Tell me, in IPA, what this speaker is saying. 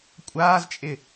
kʷʼ aː z t͡ʃʼ ɪ

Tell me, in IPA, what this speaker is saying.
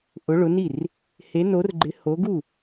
ʔ ʊ˨˦ ɭ ʊ˨˦ n i˥˩ r | h e˨˦ n o˨˦ r ɡ͡ǃ ɪ˨˦ h o˨˦ ɡ u˥˩

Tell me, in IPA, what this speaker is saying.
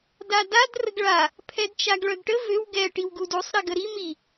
d a d a d r ə ɡ ɭ a | pʰ ɛ d t͡ʃ a ɡ ɭ œ ɡ ʈ ə v ø w ɡ ɛ ʈ i w ɡ u d u sˤ ɾ i ɡ ə ɾ i m i

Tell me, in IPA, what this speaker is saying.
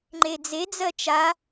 ŋ͡ǃ e d͡z e d͡z ɜ t͡ʃ a

